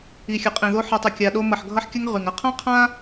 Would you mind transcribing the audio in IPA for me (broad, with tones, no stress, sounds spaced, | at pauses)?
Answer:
i˨ xʲ ɐ˨ qʼ ĩ˨ ð o˧ ħ ʌ˧ tˤ ə˧ kʲ a˧ ɗ o˦ m ʌ˨ ħ ɡʱ ʌ˧ ħ kʲ ɐ˧ ŋ ʁ y˨ ŋ ɐ˦ qʰ ã˦ qʰ ã˦